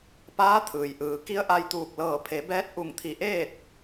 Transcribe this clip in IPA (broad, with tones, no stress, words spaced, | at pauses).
paː˧˥ t̪ʰɯː˩jʔɯː˩˧ ki˧˥ə̯ʔa˧jt̪uː˧˩k̚ lɤː˧˩pʰe˩˧bɛː˧˥t̚ ʔu˧˩ŋt̪ʰi˧˩ ʔeː˥˨t̚